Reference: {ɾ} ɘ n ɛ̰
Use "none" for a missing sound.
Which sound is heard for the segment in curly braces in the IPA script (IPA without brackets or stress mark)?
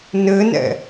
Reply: n